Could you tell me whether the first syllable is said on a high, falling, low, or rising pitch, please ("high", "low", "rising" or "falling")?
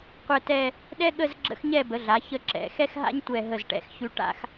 falling